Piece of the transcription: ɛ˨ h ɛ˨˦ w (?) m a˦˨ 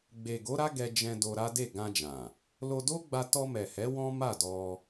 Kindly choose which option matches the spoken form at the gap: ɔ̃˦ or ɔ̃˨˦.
ɔ̃˦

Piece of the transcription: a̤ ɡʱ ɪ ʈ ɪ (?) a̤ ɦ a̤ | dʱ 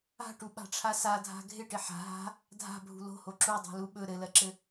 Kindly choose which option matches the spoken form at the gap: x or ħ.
ħ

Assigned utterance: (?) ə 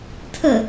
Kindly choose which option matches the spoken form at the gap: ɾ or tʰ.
tʰ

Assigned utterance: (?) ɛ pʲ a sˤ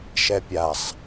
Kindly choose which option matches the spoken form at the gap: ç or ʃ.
ʃ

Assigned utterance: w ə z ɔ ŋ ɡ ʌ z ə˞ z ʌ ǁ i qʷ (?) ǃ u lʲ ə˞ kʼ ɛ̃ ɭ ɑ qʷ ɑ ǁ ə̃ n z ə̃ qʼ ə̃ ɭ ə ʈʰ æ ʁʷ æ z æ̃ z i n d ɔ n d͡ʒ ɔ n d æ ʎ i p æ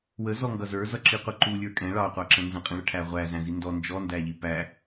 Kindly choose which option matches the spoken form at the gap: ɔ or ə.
ə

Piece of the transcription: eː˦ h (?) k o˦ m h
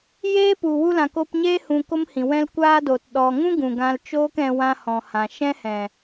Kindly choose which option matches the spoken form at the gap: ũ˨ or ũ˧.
ũ˧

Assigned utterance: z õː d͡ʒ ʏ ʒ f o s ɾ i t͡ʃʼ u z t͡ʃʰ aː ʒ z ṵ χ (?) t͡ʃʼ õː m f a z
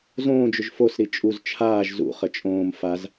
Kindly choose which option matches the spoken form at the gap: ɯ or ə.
ə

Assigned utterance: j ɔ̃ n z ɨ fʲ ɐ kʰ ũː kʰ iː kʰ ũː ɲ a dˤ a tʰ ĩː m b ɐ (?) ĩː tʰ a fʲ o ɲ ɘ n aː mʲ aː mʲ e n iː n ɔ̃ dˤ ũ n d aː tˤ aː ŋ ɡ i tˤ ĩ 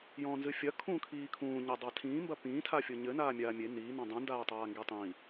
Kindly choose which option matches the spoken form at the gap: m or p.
p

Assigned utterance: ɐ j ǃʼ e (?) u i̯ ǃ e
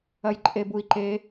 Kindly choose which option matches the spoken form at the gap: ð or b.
b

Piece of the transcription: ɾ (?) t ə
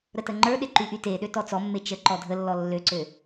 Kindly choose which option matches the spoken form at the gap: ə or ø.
ə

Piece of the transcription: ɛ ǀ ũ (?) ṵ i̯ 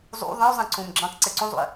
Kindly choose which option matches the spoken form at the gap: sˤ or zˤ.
zˤ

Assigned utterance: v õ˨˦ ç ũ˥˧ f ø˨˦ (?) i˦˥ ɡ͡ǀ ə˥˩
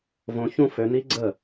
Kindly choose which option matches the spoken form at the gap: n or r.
n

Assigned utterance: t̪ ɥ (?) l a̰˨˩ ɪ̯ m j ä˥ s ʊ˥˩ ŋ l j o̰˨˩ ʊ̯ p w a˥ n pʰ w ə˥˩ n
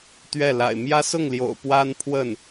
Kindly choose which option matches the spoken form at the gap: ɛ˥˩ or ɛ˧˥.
ɛ˥˩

